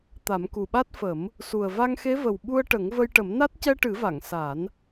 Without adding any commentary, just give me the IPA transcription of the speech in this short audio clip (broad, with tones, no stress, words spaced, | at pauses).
t̪a˨˩˦mku˨˩ɓa˦˥t̚fə˨˩˦m | su˨˩ə̯va˧ŋxe˧˥ və˨˩w ɓu˧ə̯ʈə˨˩˦ŋ və˧jʈə˨˩˦mna˦˥t̚ cɛ˧ʈɨ˨˩˦va˨˩˨ŋ sa˨˩˦n